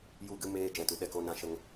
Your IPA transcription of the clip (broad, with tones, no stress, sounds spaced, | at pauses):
j u˦˨ ɡ ɨ˦ m eː˦ d͡ʒ ɛ̃˧ t u˨ ɗ ɛ˦˨ k o˦ n ã˦ ʃ ə˧ ŋ